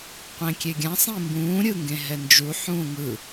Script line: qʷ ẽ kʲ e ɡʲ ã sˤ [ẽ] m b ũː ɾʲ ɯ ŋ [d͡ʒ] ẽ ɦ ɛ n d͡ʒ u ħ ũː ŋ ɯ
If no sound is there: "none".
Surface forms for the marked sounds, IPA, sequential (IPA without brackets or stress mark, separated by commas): ĩ, ɡ